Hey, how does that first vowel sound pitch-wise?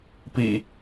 low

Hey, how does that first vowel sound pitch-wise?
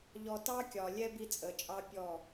low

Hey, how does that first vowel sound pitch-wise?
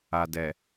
low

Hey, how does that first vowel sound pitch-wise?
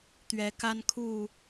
rising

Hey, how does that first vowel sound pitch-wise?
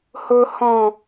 high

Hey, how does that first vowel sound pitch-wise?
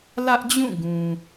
high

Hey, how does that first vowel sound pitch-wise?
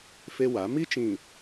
high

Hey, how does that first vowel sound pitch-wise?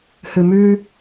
low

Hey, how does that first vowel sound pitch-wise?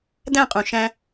falling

